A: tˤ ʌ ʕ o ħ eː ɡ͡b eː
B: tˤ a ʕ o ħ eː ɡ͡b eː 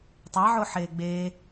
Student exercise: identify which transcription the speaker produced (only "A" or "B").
B